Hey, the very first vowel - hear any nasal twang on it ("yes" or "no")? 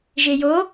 no